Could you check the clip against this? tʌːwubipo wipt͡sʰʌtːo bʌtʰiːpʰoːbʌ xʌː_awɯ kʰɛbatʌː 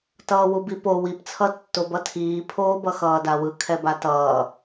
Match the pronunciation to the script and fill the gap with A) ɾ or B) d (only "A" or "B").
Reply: B